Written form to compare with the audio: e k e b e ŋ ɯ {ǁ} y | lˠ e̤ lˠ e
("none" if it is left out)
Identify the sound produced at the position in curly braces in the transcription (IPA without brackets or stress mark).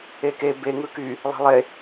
k